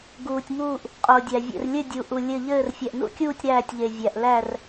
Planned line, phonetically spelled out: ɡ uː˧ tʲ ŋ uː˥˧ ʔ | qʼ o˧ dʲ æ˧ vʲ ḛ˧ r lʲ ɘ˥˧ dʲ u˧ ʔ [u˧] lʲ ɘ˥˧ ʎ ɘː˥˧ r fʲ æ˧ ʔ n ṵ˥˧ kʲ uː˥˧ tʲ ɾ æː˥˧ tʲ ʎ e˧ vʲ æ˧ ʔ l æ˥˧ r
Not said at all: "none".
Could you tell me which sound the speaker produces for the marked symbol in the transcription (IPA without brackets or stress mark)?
u˧